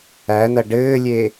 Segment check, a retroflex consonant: present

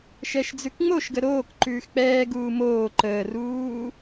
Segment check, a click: present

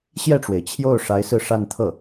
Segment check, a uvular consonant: absent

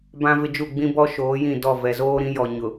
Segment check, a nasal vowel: present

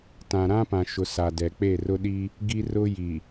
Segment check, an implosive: present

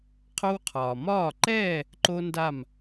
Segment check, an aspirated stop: present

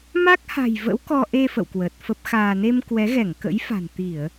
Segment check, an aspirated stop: absent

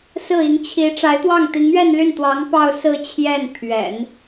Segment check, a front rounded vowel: present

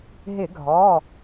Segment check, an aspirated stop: absent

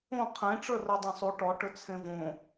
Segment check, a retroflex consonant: present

